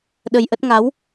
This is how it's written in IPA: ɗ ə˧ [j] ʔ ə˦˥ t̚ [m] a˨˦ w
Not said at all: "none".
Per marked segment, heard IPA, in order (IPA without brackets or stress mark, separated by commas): j, ŋ